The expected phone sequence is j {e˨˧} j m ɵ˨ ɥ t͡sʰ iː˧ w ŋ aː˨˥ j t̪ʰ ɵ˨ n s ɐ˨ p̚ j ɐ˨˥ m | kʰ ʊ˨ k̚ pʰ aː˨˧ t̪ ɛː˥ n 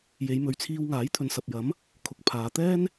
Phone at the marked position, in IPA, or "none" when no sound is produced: e˨˧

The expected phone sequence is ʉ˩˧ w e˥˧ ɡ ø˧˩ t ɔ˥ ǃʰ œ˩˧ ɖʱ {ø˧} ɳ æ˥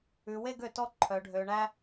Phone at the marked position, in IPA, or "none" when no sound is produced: ø˩˧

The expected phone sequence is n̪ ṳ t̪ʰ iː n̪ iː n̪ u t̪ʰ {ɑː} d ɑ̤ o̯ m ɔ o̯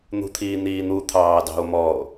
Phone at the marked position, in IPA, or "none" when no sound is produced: ɑː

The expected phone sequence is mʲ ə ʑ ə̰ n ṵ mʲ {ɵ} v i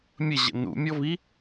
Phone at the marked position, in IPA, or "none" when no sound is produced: ɔ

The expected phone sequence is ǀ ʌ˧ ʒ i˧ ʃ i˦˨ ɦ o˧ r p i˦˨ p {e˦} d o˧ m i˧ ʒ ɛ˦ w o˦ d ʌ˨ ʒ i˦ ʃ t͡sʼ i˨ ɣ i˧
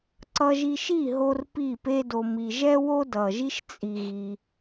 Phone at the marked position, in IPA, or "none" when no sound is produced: e˦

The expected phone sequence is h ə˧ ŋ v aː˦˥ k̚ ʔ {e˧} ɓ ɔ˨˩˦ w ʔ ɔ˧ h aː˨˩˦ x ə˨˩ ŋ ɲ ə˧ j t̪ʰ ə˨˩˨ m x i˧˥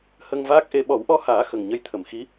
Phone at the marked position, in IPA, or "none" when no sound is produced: e˧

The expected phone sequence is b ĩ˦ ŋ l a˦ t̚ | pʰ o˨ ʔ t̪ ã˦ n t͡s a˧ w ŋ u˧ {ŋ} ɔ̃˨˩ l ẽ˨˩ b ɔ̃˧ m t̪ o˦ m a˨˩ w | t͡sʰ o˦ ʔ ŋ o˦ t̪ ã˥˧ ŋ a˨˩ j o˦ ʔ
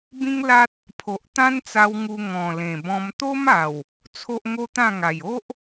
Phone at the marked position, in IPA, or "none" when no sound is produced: ŋ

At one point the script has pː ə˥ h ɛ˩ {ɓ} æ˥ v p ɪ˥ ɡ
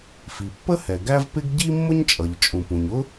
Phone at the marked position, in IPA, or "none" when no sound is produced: ɡ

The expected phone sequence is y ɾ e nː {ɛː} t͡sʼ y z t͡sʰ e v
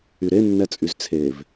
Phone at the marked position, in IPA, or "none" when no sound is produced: ɛ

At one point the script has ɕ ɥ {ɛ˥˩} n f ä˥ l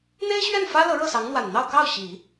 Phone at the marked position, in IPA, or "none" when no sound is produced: ɛ˥˩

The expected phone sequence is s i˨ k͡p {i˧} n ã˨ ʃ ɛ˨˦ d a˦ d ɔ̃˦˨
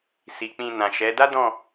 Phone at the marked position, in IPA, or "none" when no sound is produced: ĩ˧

